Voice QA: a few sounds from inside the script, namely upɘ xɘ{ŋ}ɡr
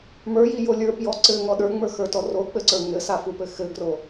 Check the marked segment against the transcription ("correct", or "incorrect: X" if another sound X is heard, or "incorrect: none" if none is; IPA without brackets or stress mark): incorrect: none